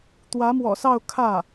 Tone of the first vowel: rising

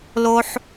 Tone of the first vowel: high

